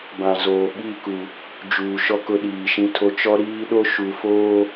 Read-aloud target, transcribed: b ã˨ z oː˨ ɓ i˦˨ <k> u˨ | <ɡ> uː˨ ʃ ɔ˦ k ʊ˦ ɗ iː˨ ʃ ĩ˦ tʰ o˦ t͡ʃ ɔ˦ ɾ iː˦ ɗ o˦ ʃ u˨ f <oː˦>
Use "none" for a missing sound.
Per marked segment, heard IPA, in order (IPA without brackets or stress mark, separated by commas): k, d͡ʒ, oː˦